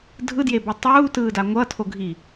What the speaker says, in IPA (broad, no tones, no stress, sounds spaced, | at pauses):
dʱ ɯ d j e b ɛ tˤ uː t ɯː d a ŋʷ ʌ tʰ o ɡʱ i